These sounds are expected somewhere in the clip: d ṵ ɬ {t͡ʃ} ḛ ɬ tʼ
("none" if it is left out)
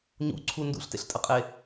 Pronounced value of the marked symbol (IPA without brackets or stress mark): t